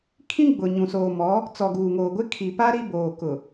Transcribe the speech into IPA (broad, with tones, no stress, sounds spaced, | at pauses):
kʰ ĩ˦ ɡ͡b ʊ˨ ɲ ũ˨ s oː˨ m ɔ˨˦ | t͡s ɔ˨ ɡ uː˨ ŋ oː˨ ɡʷ ɪ˦ kʰ i˨ p a˦ ɾ i˦ b oː˨ k ʊ˨